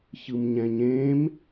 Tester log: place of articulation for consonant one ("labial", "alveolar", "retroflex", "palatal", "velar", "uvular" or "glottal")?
palatal